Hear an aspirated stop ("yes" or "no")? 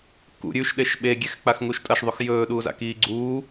no